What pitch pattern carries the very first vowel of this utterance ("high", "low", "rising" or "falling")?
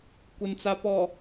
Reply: low